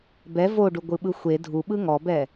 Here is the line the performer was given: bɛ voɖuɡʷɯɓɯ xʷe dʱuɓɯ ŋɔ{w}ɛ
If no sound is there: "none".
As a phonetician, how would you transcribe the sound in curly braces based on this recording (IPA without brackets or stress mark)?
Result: b